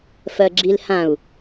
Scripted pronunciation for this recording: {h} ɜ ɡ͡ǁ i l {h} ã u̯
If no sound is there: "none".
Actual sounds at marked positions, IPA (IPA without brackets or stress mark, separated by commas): f, h